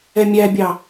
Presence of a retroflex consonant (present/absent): absent